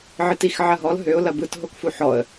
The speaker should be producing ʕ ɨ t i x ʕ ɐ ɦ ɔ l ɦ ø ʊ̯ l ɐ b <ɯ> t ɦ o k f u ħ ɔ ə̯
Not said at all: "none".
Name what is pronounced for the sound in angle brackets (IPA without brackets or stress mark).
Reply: ɯ